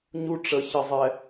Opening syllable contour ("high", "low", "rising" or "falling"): high